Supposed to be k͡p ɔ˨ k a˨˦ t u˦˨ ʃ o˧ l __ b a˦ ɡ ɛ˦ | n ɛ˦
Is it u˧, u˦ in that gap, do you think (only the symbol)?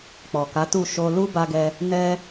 u˦